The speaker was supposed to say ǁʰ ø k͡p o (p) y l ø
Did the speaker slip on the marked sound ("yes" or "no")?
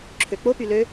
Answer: no